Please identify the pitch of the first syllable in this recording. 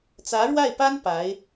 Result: rising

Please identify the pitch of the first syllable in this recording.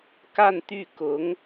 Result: falling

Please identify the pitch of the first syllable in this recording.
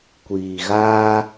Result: low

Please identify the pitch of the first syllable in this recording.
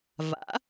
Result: rising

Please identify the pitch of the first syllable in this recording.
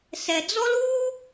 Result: low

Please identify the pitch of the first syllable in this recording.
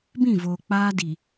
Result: falling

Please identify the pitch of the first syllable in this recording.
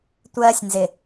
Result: high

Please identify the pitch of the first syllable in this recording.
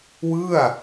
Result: falling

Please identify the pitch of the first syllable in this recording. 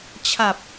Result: low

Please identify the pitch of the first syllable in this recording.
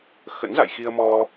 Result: rising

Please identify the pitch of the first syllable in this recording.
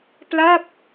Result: falling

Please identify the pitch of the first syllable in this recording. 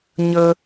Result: high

